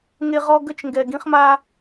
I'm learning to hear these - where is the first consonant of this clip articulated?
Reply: velum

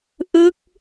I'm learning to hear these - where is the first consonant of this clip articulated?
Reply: throat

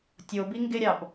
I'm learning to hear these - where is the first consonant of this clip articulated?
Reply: tongue tip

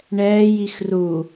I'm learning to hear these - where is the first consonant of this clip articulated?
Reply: retroflex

